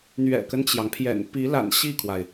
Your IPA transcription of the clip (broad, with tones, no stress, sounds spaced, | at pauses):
n̪ ɥ ɛ̰˨˩ k ə˦ n t͡ɕ j ɑ˩ ŋ pʰ j ɛ̰˨˩ n p i˧˥ l a̰˨˩ n ɕ i˥˩ kʰ w a˩ ɪ̯